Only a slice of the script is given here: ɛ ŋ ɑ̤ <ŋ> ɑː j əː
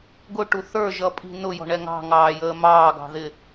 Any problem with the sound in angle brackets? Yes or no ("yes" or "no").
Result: no